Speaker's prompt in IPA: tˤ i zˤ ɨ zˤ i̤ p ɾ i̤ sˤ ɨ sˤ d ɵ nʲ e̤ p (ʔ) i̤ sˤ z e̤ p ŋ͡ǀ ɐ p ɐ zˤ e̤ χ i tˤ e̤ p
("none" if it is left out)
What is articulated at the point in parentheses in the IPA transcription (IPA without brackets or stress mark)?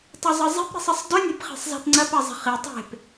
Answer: χ